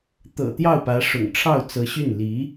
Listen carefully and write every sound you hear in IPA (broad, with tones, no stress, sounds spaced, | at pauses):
t̪ ɤ̰˨˩ t̪ j ɑ˥˩ ʊ̯ p ä˧˥ ʂ ʊ̰˨˩ ŋ ʈ͡ʂʰ ɑ˥˩ ʊ̯ t͡s ɤ˧˥ ɕ y˥˩ n l i˧˥